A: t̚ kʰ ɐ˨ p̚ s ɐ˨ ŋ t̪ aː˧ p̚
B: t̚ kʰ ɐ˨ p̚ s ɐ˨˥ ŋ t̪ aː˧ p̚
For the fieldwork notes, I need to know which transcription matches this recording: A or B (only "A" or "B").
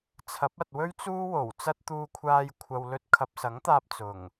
B